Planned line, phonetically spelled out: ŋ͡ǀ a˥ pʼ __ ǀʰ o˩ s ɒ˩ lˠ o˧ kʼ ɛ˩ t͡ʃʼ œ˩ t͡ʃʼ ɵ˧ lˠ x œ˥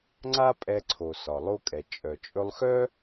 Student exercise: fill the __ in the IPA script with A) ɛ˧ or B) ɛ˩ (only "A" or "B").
A